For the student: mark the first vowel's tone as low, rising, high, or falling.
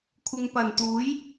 low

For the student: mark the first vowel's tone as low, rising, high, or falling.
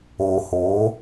low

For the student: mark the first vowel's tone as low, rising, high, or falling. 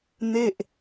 falling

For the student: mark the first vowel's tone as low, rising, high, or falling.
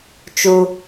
low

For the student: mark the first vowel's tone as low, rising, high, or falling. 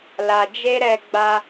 low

